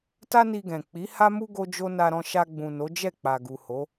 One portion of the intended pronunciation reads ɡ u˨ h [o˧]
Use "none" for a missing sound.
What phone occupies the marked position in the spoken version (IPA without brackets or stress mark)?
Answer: o˨˦